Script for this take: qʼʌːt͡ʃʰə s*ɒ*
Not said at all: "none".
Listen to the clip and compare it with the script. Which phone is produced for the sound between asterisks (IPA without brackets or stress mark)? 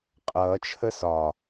ɒ